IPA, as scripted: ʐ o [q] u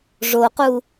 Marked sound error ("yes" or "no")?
no